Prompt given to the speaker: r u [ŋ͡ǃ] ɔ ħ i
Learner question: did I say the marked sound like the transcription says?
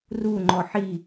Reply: yes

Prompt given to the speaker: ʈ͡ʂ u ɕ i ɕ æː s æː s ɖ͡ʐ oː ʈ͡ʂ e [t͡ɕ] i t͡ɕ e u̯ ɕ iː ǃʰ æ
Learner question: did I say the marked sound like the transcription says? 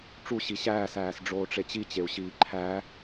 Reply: yes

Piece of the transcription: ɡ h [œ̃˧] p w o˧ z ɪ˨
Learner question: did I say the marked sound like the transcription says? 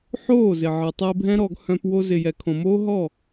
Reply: yes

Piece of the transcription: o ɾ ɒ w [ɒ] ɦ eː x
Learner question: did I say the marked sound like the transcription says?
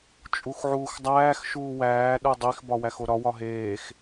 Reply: yes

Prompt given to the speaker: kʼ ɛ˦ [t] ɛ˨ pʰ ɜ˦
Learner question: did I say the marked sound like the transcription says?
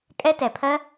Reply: yes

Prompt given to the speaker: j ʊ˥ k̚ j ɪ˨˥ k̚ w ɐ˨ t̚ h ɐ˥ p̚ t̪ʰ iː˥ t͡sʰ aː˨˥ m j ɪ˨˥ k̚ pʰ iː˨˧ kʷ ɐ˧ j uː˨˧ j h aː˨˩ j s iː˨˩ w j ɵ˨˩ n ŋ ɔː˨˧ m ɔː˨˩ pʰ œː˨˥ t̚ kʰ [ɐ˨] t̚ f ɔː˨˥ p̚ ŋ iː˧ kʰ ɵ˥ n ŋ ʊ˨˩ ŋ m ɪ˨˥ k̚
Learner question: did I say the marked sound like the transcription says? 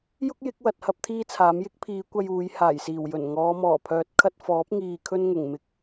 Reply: no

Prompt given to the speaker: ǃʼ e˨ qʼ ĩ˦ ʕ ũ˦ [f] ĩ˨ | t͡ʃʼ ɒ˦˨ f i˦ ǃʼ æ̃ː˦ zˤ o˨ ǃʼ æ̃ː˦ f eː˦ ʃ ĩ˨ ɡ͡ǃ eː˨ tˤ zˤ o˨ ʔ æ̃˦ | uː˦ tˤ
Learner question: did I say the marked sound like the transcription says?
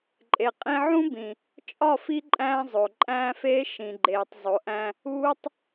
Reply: no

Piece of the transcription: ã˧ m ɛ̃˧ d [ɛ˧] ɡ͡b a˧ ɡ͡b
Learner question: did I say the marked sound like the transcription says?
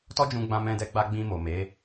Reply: yes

